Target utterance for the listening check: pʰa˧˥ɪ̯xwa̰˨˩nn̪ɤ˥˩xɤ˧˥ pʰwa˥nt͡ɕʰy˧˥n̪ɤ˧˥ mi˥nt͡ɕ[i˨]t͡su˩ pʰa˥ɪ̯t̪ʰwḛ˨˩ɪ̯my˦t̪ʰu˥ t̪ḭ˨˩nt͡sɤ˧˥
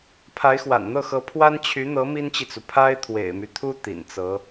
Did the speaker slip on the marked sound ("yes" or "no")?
no